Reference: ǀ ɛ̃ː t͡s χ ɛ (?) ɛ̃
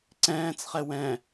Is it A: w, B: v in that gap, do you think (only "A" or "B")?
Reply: A